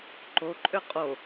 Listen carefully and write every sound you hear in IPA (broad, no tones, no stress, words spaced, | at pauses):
ǃoǃʼʏ qʼo